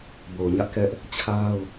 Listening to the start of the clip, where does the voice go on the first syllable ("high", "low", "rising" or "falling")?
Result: low